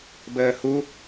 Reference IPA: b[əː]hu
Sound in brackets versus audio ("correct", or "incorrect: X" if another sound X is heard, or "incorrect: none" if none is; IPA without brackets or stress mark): correct